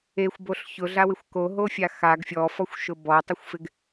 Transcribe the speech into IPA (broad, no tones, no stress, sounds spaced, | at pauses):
e xʷ b o ɬ ç ʊ ɮ a w ɪ xʷ k o ɦ o fʲ a x a ɡ fʲ ɔ f ɔ xʷ ʃ ʊ b ɔ tˤ ɪ xʷ f ɪ ɡ